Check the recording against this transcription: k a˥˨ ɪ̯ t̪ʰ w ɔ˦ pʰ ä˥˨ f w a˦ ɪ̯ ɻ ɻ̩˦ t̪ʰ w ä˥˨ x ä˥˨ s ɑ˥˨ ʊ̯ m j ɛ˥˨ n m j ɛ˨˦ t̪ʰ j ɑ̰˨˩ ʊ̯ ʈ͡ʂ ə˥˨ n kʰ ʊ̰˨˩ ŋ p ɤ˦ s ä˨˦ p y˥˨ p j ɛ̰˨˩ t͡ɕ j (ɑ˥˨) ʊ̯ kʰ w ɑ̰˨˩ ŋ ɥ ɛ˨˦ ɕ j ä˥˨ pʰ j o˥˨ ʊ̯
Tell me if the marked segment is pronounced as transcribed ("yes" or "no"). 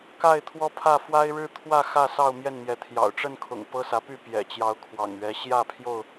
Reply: no